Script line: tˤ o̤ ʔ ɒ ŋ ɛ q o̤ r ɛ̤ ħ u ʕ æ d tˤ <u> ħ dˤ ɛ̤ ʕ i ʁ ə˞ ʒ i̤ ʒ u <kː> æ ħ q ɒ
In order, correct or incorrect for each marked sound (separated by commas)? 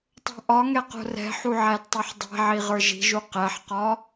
incorrect, incorrect